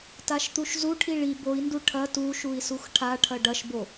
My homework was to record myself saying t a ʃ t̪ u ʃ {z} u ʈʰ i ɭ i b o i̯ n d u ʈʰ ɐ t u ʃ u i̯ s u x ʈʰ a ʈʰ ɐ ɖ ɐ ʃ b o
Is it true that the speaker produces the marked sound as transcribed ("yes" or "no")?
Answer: yes